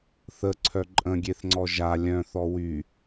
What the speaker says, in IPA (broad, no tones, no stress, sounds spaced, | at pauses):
θ ə ǀʰ œ ǃʼ ə̃ ɡʲ e θ ŋ͡ǀ ɔ ʒ a lʲ œ̃ θ ɔ w y